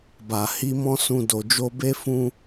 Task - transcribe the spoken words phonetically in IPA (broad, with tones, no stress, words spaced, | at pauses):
ba˨ hi˧mɔ̃˦ sũ˧ do˨d͡ʒo˧be˦ fũ˦